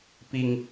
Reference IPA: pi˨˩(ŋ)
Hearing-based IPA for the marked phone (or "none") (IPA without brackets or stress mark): ŋ